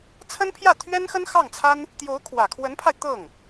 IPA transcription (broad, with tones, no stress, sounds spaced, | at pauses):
t͡sʰ ə˥ n pʰ j ä˥˩ t̪ʰ ɥ ɛ˥ n x ə˥ n x ɑ˥˩ ŋ t͡sʰ a˥ n | t̪ j o˧˥ ʊ̯ kʰ w ä˨˩ kʰ w ə˧˥ n pʰ a˧ ɪ̯ t̪ ɤ˥˩ ŋ